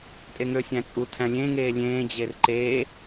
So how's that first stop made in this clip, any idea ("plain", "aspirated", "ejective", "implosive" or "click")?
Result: ejective